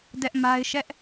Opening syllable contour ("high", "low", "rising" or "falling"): high